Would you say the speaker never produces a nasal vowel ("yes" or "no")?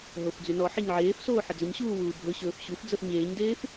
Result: yes